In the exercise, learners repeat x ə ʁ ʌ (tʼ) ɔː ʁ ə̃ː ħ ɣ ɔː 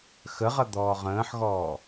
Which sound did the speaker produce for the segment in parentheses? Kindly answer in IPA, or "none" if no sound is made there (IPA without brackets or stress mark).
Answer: d̪